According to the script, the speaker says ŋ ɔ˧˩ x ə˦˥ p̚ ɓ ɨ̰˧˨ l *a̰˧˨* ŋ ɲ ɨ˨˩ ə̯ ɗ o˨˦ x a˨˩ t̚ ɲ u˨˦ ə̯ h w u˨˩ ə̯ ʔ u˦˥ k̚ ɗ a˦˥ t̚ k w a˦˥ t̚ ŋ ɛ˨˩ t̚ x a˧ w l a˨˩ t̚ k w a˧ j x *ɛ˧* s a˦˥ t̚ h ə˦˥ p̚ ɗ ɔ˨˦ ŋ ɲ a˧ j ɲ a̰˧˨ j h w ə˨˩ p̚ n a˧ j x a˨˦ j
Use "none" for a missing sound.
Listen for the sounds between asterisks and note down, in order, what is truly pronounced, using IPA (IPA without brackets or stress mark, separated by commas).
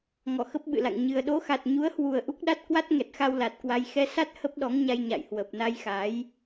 a̰˧˨, ɛ˧